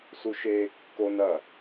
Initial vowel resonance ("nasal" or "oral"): oral